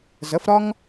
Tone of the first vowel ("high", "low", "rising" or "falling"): rising